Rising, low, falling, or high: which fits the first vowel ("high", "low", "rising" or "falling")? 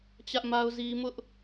high